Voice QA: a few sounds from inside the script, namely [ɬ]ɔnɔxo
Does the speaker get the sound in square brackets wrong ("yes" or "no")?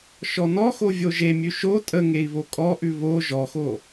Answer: yes